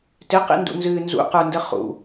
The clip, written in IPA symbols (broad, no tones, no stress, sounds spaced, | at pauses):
t ɪ q ḭ n d ṵ n z ɨː n z ṵ q ə˞ n d ə χ ṵ